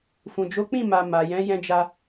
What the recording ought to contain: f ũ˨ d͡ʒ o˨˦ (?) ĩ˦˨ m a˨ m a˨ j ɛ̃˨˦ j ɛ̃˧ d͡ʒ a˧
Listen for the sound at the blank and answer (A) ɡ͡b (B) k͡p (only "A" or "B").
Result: B